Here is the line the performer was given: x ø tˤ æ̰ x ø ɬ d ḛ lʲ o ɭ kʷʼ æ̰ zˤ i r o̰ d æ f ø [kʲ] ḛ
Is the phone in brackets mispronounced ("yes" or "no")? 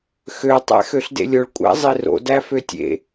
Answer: yes